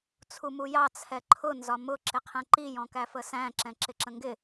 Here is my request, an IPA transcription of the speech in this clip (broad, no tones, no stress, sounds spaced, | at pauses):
t͡sʰ u m u j ɑ t͡sʰ ɛ ǃʰ ʊ n z ɒ m ʊ ǁ ɪ qʰ ɛ̃ ǃ i j ɔ̃ k æ f ə s æ̃ ǁ ɛ̃ ǁ ɪ ǁ ə̃ ŋ ɡ ɪ